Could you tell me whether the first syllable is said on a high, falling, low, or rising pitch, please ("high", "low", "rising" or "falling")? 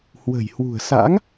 low